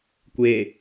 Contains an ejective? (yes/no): no